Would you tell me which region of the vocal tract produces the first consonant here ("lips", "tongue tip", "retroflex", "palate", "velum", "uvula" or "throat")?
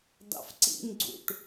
tongue tip